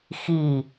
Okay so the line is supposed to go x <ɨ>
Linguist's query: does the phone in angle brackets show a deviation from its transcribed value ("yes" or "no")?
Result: yes